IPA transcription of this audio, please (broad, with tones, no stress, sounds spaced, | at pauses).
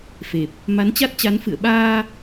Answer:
f e˨˩ p̚ | m a˨˦ n t͡ɕ a˦˥ t̚ t͡ɕ a˨˦ n f ɨ̰˧˨ ə̯ ɓ aː˧